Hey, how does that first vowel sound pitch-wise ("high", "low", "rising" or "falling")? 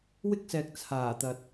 high